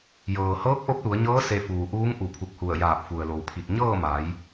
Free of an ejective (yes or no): yes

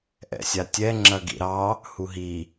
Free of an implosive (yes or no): yes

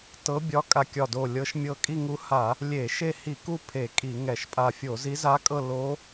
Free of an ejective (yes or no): no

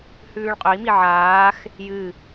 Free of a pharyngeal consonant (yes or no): no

